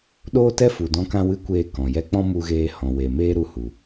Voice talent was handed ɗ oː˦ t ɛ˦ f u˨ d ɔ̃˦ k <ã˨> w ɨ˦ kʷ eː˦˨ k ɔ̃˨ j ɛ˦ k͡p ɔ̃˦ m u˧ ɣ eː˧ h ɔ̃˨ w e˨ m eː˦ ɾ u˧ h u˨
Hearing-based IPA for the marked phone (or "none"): ã˦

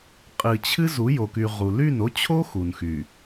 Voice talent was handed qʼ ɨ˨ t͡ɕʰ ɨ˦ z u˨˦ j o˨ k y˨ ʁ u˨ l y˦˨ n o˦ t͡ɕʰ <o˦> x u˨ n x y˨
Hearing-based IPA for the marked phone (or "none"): o˦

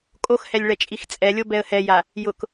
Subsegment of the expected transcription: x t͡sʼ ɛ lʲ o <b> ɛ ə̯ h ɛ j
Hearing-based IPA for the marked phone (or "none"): b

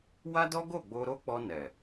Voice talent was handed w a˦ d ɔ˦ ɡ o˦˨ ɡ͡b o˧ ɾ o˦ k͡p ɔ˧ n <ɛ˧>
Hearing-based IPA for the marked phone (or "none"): ɛ˨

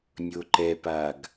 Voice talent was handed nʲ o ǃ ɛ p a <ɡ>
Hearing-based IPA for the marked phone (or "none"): ɡ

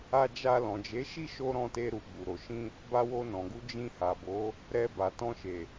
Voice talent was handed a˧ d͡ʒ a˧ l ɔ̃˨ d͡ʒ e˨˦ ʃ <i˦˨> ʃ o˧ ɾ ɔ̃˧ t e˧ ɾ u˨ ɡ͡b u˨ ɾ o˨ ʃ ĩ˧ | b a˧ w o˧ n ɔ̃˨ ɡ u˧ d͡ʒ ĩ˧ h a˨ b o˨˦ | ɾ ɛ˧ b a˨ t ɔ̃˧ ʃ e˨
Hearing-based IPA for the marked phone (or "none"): i˦˨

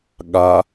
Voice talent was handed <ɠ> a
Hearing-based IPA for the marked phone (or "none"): ɠ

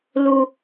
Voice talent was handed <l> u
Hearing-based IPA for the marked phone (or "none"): l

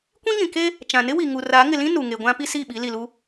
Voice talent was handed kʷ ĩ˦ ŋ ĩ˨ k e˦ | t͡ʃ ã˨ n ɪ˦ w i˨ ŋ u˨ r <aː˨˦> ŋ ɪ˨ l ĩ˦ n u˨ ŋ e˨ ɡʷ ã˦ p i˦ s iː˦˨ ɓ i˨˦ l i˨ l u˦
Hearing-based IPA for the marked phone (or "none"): aː˨˦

